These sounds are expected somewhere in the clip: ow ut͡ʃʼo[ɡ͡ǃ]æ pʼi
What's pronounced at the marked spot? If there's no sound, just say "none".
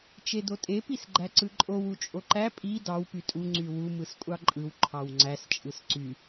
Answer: ǃ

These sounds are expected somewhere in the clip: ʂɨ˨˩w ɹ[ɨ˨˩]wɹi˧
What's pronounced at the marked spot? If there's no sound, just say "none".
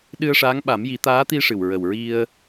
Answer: ə˨˩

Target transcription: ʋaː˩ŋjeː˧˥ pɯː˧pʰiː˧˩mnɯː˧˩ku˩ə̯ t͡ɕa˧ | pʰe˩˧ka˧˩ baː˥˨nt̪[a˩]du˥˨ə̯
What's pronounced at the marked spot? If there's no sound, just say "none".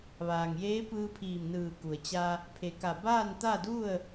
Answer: a˥˨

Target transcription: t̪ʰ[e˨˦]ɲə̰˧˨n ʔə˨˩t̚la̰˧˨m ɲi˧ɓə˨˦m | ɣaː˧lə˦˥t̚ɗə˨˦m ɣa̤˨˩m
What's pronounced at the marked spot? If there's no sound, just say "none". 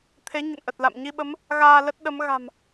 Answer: e˨˦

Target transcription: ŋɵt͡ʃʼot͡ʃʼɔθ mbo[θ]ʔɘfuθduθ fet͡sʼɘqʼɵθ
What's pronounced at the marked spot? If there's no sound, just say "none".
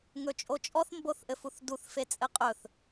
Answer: θ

